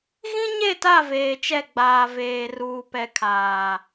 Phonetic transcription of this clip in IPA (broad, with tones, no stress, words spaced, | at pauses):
ɣĩ˦ɲe˦˨ta˦˨ veː˨t͡ʃɛ˦˨ɡ͡baː˨ veː˨ruː˨pɛ˨˦ kʰaː˨